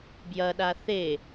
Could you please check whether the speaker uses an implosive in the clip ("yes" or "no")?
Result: yes